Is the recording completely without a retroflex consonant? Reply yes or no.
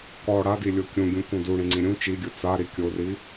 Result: no